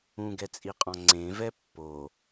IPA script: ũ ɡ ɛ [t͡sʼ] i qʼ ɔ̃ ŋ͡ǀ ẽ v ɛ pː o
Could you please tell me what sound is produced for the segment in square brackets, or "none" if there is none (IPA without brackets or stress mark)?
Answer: t͡sʼ